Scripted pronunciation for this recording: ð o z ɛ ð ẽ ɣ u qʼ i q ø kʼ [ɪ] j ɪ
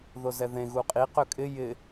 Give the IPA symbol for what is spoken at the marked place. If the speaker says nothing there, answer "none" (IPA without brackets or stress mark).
ɪ